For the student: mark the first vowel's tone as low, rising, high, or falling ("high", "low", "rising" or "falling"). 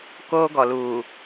high